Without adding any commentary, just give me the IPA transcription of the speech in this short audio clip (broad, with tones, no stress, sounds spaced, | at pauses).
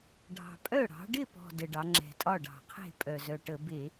ɖʱ ɑ̤˨˩ pʼ œ˥˩ ɽ ɑ̤˩˧ ɖ ɪ˥˩ p ɔ̤˨˩ d ə˨˩ ɖ ɑ˩˧ ŋ͡ǁ ɛ̤˨˩ tʼ ɒ˥˩ ɖ ɑ̤˧˩˧ qʰ e̤˥˩ pʼ œ˨˩ z œ˨˩ ʈ ə˧˩˧ b e˧˩˧